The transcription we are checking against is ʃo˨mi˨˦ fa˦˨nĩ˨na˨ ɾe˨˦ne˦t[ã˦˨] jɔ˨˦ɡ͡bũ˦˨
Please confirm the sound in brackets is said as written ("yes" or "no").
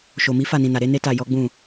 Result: no